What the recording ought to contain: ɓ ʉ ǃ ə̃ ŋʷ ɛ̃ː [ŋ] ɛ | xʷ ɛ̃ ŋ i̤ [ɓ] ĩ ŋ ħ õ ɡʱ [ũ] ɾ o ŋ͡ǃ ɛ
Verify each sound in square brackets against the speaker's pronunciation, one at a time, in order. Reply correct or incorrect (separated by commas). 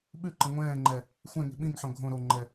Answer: incorrect, correct, incorrect